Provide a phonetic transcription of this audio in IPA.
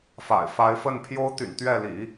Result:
f a̰˨˩ ɪ̯ f a˧˥ ɪ̯ f ə˥˩ n pʰ j o˥ ʊ̯ t̪ y̰˨˩ n t̪ ɥ ɛ˥˩ l ḭ˨˩˦

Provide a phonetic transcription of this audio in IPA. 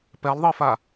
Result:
p ɛ lˠ ðˤ ɯ f a

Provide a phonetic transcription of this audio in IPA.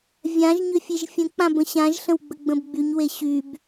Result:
vʲ ã ʒ ɲ ʏ fʲ e ʒ fʲ ə̃ k͡p ã b ə̃ ɕ ã ʒ ɬ ə̃ w ɡ͡b ə ɡ͡b ə̃ b ɡ͡b y ɲ w e ɕ y b

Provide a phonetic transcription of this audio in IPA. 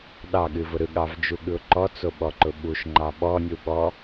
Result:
ɗ ɑ ɠ ɨ v ʊ ɾ ɯ ɠ ɑ v d͡ʒ u ɠ ɯ ʊ̯ ǃ ɔ t͡s o ɓ ɔ ǃ ʊ ɓ u ʃ ŋ͡ǃ ɑ ɓ ɔ nʲ u ɓ ɔ

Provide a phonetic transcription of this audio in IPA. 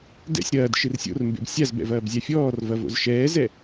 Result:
d ɛ̰ sʲ ɾ ɐː d ʃ ɨ r sʲ o̰ r m b ḛ b sʲ a z b ɛ̰ v ɐː b zʲ a fʲ ɔː r v ɐ v o̰ z ʃ ɛː z ɛ

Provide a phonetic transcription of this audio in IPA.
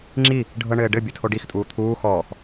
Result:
ŋ͡ǁ i | ɖʱ ɤ ɳ ɘː ɖ ɘ bʲ ɘ tʰ o ɖ i x tʼ uː t̪ʰ uː x ɔː x

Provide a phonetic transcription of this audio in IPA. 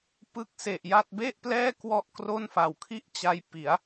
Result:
p ɯ˦˥ k̚ s e˨˩ ʔ j a˥˩ t̚ b e˥˩ ʔ p l ɛː˥˩ k w ɔ˥˩ ʔ k r o˥˩ n f a˨˩ w kʰ i˥˩ ʔ t͡ɕ a˧ j p i˩˦ a̯

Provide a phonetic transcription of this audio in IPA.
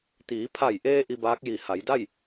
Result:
t̪ iː˩˧ pʰ a˧˩ j ʔ eː˧ ʔ i˧ b aː˧˥ k̚ j i˧˩ h a˩˧ j d a˥˨ j

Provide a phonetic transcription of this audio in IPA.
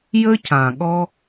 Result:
j ə˦ cʰ ã˨ ɠ ɔ˦

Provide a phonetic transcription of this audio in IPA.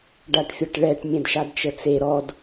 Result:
ɖ a ʈ fʲ ʌ ʈ ɭ ɛ ʈ mʲ ɛ̃ d ʃ a d t͡ʃ ə t͡s e ɾ ɔ d

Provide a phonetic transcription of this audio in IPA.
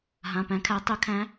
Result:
ɦ ã˩˧˩ p æ̃˨˦ kʰ æ˨˦ tˤ ø˨˦ kʰ æ̃˨˦

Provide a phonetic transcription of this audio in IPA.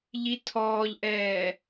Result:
ʎ i tʰ ɔː ʎ ʔ ɛː

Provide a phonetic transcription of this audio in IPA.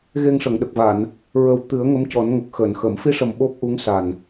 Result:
ɣ e˧ ŋ ʂ ə˨˩˨ ŋ ɗ ə˨˩ k̚ v a˨˩˨ n | ɹ ə˨˩ w t̪ ɨ˨˩˦ ə̯ ŋ ə˧˥ m c ɔ˨˩˦ n ŋ ə˨˩ k̚ x əː˨˩˨ n x əː˨˩˨ m f i˧ ʂ ə˨˩ m ɓ o˦˥ p̚ ʔ u˧˥ ŋ s a˨˩ n

